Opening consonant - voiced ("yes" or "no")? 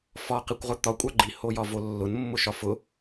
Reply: no